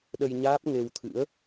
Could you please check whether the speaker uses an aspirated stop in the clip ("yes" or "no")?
yes